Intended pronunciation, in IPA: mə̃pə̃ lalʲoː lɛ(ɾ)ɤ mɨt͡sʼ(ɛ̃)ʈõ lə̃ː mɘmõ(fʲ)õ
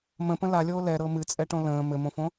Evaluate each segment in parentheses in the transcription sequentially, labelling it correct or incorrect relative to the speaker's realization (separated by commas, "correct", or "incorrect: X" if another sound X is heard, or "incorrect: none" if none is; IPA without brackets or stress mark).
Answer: correct, incorrect: ɛ, incorrect: f